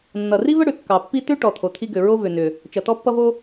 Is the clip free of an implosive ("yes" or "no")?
yes